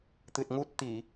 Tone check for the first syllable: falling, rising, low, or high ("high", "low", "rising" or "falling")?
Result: low